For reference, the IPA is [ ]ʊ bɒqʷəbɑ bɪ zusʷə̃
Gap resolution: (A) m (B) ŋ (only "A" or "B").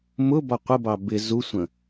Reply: A